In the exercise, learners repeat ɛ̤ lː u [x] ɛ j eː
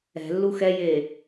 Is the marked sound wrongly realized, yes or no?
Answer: no